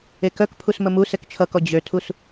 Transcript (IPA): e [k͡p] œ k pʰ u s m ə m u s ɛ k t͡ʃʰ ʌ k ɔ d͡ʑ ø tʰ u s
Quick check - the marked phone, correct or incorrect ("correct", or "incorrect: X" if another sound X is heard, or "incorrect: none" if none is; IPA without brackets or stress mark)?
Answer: incorrect: k